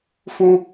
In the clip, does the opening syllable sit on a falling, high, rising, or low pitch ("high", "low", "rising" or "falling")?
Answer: high